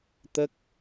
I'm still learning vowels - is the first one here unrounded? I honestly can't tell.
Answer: yes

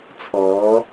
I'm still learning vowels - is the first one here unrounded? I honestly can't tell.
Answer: no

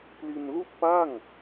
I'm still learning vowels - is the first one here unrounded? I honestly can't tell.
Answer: yes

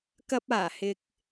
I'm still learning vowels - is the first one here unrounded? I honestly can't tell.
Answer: yes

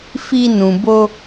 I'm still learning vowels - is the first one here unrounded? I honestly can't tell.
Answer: yes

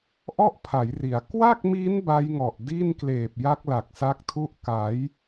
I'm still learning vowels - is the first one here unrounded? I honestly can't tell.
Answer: no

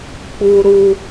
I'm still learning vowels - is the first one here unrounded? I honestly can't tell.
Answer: no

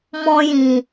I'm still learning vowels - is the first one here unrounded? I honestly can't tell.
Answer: no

